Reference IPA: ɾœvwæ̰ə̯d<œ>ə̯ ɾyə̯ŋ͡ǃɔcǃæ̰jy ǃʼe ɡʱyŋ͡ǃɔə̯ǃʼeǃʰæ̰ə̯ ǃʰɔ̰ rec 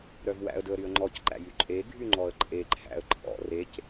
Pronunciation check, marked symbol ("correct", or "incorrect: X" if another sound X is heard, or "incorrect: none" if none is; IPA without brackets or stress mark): incorrect: ɵ